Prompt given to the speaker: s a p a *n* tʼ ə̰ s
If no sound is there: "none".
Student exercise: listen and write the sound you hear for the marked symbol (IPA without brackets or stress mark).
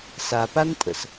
n